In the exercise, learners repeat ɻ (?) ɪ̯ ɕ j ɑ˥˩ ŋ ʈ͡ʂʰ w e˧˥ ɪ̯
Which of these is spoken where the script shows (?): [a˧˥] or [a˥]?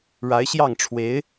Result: a˧˥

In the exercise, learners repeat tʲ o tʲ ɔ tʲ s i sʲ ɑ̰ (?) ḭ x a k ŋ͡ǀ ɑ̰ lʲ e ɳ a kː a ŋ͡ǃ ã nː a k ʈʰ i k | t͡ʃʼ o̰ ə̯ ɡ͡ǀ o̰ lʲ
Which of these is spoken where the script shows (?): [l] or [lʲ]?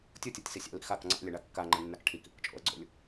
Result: l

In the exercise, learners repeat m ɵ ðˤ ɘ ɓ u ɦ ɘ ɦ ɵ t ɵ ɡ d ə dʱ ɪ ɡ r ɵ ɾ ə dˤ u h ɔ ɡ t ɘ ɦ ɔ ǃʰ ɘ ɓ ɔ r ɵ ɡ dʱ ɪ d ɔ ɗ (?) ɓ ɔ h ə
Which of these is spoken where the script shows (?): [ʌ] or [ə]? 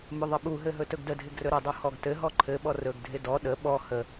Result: ə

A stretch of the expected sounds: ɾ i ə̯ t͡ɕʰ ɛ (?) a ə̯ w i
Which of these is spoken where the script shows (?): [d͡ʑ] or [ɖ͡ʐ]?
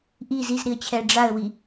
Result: ɖ͡ʐ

